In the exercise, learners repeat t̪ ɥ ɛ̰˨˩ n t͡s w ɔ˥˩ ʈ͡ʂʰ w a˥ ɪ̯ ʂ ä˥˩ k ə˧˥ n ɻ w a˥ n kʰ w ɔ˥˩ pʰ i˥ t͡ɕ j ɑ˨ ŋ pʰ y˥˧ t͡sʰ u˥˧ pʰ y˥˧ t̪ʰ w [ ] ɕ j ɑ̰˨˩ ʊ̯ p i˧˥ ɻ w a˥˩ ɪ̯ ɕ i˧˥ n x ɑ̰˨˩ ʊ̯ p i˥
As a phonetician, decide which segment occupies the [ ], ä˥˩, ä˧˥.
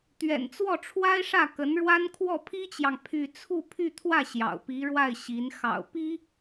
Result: ä˥˩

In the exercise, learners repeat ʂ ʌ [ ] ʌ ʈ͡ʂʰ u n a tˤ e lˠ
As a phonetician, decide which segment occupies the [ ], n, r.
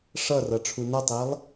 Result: r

